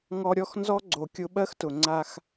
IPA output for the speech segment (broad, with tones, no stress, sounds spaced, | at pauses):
ŋ ɔ˧ ɾʲ ɔ˦ x n z ɔ˦ ɡ͡ǀ o˨ kʲ ʊ˧ ɓ ɜ˦ x t ʊ˨ ŋ͡ǀ a˧ x